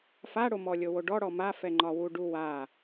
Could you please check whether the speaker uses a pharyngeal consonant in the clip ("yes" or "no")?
no